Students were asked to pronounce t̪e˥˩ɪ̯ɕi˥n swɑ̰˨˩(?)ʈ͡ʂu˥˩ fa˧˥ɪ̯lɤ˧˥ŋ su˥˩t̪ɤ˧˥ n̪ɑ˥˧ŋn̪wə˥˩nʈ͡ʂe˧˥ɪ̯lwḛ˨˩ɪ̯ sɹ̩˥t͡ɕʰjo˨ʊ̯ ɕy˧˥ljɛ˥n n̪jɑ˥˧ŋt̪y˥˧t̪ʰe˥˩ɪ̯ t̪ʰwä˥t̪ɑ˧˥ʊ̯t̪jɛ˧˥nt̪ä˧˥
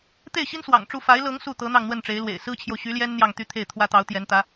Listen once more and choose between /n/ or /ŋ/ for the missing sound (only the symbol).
ŋ